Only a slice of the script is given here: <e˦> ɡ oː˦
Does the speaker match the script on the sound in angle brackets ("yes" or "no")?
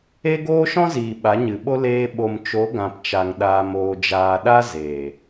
yes